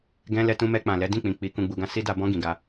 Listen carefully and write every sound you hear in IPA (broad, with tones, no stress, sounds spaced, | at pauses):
ɡ ɛ̃˧ l ɛ˧ t ũ˧ m ɛ˧ k͡p ã˨ l ɛ˨˦ d ĩ˦˨ k͡p ĩ˨ k͡p i˨˦ k ũ˧ ɡ͡b u˧ ɡ ã˦ s i˦ d a˧ b ɔ̃˦ ɡ ĩ˧ ɡ a˦